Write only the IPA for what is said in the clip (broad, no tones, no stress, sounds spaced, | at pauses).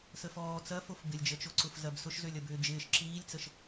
s ə f ɔː t͡s ɐ f o f b ɪ lʲ d͡ʒ ə t͡ʃ o ǀ ʊ f z ɐ b s ʊ ʃ z ø lʲ ɐ b ʏː d͡ʒ ɪː ʃ ǁ iː lʲ t͡s ə ʃ